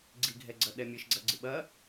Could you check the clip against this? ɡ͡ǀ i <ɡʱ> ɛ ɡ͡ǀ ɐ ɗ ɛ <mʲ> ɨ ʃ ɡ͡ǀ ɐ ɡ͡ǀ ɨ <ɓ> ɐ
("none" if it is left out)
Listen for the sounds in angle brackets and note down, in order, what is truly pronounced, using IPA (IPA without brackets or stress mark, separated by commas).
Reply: ɡʱ, mʲ, ɓ